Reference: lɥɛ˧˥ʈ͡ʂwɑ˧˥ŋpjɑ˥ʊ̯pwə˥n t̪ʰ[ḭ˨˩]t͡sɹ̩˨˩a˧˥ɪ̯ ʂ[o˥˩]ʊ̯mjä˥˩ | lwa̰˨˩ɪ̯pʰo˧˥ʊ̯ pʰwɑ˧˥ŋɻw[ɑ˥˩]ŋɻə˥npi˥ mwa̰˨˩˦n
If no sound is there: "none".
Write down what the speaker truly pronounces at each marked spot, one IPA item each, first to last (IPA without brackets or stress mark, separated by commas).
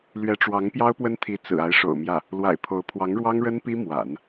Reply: i˧˥, o̰˨˩, ɑ˥